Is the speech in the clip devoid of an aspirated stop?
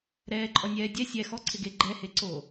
no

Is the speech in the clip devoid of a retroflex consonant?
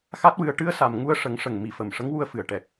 no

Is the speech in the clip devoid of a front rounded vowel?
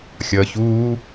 yes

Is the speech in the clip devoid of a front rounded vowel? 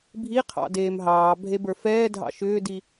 no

